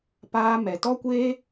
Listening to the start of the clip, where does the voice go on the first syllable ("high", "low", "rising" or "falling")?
high